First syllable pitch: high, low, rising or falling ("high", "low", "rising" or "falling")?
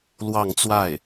falling